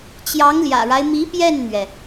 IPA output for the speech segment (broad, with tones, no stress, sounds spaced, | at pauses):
t͡ɕ j ɑ˧˥ ŋ l j ä̰˨˩ ɻ a˦ ɪ̯ m i˧˥ p j ɛ˥˩ n n̪ ɥ ɛ˩